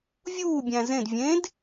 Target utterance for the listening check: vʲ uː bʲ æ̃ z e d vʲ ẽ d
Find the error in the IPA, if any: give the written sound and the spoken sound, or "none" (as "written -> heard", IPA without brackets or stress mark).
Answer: e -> ẽ